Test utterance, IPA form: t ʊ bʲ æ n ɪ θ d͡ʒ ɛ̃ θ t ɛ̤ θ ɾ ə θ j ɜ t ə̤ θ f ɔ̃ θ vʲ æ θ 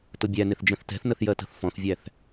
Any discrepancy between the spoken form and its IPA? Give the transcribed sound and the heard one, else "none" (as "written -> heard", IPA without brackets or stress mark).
ɾ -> n